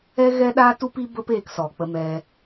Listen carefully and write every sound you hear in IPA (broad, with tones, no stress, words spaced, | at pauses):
ɛ˦ɣɛ˦ɗaː˦ tu˦pi˦ bə˦p eː˧ksɔ˨ k͡pə˧mɛ˧